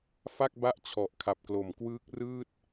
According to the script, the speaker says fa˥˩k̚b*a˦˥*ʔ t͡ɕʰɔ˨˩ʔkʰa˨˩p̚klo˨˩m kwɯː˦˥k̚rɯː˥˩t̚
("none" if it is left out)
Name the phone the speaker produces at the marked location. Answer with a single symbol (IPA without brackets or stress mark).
a˥˩